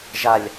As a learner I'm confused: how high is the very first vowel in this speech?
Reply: low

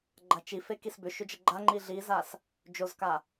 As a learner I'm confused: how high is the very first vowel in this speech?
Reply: low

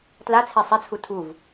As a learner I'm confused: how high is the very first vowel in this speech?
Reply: low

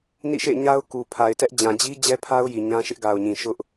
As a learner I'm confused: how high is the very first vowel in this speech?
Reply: high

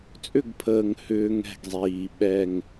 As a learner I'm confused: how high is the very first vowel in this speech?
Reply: high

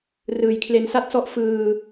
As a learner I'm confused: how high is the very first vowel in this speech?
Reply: high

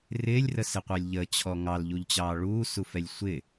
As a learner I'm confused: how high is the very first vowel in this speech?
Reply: high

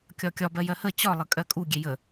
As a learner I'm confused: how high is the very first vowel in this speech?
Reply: low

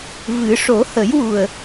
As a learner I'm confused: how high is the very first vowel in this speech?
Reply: high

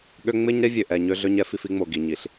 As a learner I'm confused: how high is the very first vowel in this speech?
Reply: mid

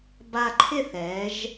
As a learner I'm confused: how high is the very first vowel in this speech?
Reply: low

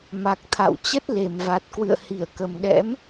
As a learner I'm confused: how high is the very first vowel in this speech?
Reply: low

